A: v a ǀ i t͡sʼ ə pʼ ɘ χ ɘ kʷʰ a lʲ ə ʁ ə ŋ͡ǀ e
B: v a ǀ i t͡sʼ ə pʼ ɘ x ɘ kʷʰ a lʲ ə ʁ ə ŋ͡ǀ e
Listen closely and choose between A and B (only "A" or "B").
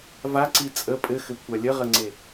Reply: B